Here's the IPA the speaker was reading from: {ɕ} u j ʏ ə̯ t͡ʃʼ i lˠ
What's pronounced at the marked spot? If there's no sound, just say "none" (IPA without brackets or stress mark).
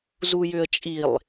z